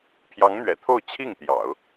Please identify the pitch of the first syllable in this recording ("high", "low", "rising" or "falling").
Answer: rising